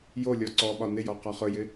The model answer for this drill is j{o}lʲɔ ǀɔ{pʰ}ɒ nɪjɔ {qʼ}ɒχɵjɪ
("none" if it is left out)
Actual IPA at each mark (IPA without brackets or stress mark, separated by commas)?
o, ɓ, q